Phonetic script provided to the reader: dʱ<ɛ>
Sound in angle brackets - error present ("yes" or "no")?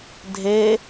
yes